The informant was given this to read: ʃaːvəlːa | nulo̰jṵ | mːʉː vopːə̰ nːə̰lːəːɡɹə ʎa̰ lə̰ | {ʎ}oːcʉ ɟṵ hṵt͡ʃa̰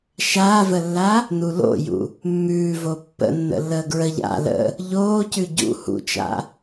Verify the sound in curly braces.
correct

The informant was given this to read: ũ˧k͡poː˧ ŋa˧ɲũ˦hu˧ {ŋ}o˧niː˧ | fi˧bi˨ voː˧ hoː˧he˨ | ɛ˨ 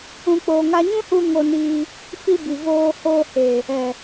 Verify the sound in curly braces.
correct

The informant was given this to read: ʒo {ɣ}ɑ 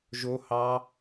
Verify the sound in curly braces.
incorrect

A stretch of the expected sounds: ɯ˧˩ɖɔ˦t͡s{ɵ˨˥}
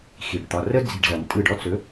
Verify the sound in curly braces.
correct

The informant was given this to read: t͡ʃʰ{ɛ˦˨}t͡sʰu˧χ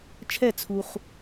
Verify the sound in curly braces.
correct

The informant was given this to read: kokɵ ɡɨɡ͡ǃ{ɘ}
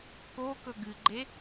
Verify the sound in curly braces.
incorrect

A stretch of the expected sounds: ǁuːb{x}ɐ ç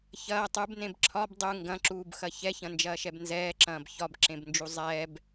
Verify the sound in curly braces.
correct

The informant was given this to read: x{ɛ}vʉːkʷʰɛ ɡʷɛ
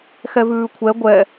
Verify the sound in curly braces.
correct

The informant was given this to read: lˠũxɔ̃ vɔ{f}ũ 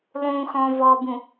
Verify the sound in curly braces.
incorrect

